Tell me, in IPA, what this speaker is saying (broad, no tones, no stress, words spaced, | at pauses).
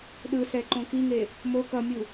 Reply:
ɗɯsɛǃõ kiŋe | mo kʌmʲu